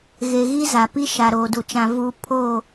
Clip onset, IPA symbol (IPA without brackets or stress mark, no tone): ɣ